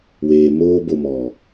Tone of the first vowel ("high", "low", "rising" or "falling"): low